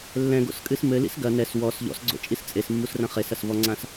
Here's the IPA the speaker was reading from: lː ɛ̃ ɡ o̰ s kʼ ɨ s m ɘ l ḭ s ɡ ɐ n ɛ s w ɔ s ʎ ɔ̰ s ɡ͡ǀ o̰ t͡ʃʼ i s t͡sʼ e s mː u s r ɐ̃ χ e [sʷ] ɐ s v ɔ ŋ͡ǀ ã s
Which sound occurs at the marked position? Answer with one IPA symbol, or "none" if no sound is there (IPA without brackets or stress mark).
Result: s